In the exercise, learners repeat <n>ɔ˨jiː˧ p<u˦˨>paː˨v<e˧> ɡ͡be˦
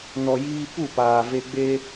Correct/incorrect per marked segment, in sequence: correct, correct, correct

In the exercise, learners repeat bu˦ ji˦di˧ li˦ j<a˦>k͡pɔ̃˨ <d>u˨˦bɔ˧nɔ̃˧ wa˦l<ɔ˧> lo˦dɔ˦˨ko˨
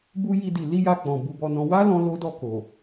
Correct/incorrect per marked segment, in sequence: incorrect, incorrect, incorrect

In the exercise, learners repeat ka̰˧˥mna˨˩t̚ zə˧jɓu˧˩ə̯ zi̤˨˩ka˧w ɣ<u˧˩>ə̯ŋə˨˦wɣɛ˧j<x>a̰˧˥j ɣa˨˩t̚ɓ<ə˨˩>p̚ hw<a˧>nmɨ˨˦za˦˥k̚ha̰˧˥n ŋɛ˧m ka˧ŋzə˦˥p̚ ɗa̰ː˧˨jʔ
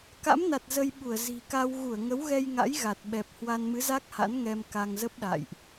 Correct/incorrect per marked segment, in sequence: correct, incorrect, incorrect, correct

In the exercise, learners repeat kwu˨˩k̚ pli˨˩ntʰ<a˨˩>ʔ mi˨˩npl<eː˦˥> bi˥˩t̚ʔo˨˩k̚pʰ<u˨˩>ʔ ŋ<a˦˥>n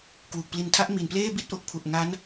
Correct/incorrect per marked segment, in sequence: incorrect, incorrect, correct, correct

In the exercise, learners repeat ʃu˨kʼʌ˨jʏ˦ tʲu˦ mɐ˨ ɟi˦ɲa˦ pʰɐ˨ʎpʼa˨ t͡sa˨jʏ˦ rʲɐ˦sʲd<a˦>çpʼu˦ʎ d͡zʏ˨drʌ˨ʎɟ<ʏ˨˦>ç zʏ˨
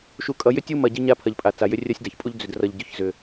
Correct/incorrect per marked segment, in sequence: incorrect, correct

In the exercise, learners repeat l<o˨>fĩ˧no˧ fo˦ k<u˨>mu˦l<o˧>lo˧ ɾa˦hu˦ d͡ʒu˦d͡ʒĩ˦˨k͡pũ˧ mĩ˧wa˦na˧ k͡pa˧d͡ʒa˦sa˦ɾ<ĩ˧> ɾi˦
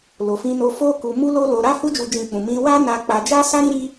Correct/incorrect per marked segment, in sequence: correct, incorrect, incorrect, incorrect

